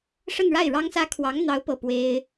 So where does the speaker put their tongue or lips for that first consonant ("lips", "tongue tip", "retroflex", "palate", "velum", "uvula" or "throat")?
retroflex